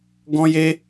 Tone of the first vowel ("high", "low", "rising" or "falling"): high